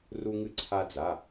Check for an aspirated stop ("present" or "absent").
present